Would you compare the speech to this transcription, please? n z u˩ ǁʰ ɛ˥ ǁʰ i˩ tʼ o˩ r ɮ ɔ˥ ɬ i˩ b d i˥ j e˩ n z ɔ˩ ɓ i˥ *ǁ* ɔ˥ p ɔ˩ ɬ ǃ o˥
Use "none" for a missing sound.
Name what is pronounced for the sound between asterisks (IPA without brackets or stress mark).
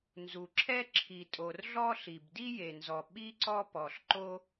ǀ